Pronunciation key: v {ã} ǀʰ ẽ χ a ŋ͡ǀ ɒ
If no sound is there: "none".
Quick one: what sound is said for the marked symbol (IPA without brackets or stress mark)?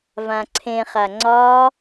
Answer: ã